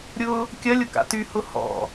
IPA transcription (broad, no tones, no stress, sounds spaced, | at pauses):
ɾʲ ʊ | kʲ ɐ lʲ ʊ k a̰ t y h ʊ h ɔ̰